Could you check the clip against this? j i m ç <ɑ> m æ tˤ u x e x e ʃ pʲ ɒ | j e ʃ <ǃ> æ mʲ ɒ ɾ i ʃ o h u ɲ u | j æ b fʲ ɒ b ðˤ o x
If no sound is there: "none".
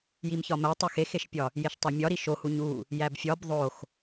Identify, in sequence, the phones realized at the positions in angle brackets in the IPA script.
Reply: ɒ, tˤ

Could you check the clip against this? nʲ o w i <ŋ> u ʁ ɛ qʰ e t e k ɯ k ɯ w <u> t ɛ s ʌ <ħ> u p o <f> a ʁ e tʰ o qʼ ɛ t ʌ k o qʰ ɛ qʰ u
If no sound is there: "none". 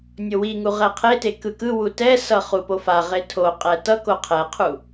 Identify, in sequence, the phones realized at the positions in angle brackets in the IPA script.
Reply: ŋ, u, χ, f

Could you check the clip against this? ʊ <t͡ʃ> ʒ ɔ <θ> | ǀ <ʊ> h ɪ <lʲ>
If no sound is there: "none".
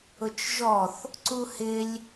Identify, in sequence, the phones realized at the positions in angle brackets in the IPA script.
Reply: t͡ʃ, θ, u, lʲ

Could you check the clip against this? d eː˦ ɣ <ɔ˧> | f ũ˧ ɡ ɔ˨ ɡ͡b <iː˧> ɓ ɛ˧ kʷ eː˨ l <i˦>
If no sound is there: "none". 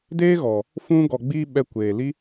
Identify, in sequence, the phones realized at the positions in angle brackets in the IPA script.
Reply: ɔ˨, iː˧, i˦

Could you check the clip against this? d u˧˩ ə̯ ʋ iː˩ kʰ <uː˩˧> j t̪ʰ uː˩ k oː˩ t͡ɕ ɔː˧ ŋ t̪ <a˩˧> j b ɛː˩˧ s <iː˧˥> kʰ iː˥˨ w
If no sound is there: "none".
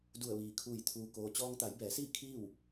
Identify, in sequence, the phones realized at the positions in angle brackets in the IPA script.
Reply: uː˧˩, a˩˧, iː˥˨

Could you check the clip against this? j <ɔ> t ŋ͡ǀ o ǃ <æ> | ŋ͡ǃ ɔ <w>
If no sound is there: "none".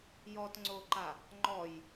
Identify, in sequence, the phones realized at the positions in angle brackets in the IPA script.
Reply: ɔ, a, j

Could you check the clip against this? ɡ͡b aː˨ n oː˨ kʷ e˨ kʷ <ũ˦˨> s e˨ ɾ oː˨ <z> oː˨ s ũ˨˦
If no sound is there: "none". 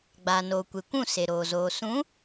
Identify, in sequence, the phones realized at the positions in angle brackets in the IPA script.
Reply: ũ˦˨, z

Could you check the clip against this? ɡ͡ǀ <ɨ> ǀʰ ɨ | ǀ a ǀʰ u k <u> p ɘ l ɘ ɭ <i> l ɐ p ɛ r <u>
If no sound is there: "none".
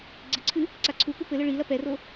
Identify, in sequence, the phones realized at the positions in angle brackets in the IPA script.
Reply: ɨ, u, i, o

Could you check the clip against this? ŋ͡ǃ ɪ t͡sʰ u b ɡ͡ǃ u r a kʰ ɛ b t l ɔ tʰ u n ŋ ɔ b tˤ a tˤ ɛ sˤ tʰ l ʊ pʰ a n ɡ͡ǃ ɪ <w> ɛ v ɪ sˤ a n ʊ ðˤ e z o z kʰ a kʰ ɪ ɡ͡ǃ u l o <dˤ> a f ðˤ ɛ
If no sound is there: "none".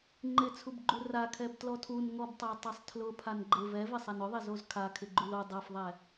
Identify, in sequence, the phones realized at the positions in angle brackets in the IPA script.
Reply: v, dˤ

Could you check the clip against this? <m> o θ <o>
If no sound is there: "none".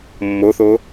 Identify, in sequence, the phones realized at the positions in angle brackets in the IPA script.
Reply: mː, o

